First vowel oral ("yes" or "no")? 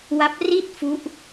yes